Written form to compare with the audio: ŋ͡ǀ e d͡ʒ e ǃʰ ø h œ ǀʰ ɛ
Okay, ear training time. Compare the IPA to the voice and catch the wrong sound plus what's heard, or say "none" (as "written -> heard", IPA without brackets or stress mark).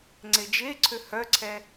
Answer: ǃʰ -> ǀʰ